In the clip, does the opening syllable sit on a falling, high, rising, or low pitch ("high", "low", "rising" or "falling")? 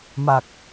low